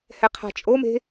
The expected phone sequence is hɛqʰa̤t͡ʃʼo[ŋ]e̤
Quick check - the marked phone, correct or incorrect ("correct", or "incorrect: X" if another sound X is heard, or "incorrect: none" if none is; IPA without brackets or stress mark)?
incorrect: m